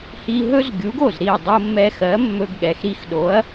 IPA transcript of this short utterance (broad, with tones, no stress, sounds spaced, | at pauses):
h i˧ ɦ ɵ˥ z ɡʲ u˩˥ ɡ o˥˩ z ɾ i˥˩ ɐ̯ dˤ o˧ mː ɛ˧ x ɜ˩˥ mː ɵ˧ ɡ ɠ ɛ˩ x ɾ i˧ x ɗ o˩˥ ɐ̯